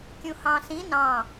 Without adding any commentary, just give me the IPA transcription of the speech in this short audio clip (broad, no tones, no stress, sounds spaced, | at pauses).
kʲ ũ h ɑ̃ s ĩ n ɑ̃